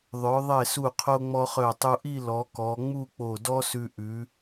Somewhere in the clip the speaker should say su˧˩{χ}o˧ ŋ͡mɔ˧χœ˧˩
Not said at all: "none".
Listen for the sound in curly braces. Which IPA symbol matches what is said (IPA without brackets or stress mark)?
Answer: qʰ